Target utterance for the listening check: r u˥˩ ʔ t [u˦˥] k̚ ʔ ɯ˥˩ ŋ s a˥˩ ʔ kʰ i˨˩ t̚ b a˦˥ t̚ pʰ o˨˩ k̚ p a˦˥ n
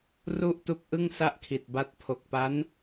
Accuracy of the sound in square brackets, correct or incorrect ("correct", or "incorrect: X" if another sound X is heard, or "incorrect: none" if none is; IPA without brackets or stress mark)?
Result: correct